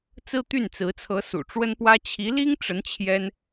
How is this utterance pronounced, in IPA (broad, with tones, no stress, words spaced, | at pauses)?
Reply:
t͡sɹ̩˥t̪y˥˩nt͡sɹ̩˧˥t͡sʰɤ˧˥ sṵ˨˩ʈ͡ʂwə˥npwä˥ t͡ɕʰi˧˥li˥ŋʈ͡ʂə˧˥n t͡ɕʰjɛ˥n